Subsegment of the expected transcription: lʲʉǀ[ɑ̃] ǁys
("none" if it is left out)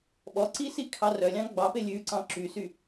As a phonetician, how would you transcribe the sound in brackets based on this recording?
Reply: ɑ̃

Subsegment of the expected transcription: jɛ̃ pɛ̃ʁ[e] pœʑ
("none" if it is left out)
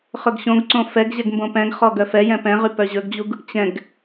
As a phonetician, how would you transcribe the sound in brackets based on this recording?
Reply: y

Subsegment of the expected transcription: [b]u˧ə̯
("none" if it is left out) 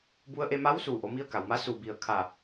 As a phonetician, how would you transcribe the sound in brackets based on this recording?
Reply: b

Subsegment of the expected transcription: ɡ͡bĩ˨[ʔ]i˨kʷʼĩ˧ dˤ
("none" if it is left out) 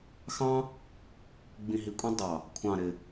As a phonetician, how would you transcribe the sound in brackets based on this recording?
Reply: ɦ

